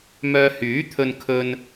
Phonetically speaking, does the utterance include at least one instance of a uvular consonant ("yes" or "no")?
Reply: no